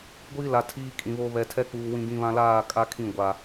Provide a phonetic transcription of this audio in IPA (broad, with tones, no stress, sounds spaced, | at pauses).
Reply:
ɡʷ iː˦ l a˨ tʰ iː˦ kʼ ĩ˨ β o˦ β ɛ˨ tʰ ɛ˦ k͡p uː˨ w ĩ˨ ɡ ĩ˨ β ã˨ l aː˦˨ kʼ a˦ kʰ ĩ˦˨ ɡʷ a˨